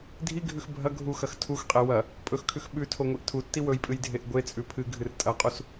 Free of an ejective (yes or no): no